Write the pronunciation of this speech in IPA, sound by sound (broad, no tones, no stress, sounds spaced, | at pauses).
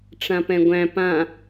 ʈ͡ʂ ã p ɛ̃ ɡʷ æ̃ p ã